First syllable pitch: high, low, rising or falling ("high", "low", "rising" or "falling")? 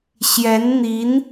rising